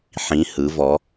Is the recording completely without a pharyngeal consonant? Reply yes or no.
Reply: no